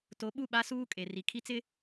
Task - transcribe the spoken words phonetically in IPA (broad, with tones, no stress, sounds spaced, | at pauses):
t o˨˦ ɓ u˦˨ ɓ a˦ s uː˦ kʼ e˨ r i˨ kʰ i˦ t͡s ɪ˦